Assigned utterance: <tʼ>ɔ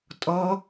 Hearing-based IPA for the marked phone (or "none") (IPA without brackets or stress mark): tʼ